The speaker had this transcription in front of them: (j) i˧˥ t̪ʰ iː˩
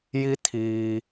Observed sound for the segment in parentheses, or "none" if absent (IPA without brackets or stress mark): j